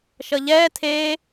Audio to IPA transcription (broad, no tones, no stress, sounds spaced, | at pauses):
ʃ ʌ ʎ ɛː tʰ eː